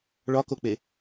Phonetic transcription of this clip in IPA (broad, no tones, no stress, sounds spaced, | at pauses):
ɭ ɒ k o k͡p e